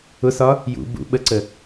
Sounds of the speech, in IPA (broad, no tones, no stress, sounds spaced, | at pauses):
ʊ s ɒ | j ṵ b ṵ ɓ ə ǀ ə